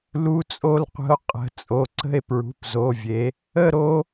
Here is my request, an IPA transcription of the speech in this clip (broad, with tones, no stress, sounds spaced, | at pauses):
l u˦˥ t͡sʼ o˥˧ l qʷ ə̤˦˥ o̯ qʼ ə̤˩˧˩ t͡sʼ o˩˧˩ ǀ ə̤˥˧ e̯ p ɹ ṳ˩˧˩ p z o˩˧˩ vʲ e˩˧ | ə˥˧ ɾ o˦˥